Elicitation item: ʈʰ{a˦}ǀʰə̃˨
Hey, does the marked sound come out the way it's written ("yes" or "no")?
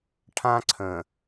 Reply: no